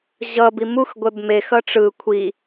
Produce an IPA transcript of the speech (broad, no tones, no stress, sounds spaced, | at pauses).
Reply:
ʑ ʌ b i m u x ɡʷ ɛ b m e x ʌ ʈ͡ʂ ɯ kʷʰ i